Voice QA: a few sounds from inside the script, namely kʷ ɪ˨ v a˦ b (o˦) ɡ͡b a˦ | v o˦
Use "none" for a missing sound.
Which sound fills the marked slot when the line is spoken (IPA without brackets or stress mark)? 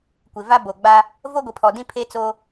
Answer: o˨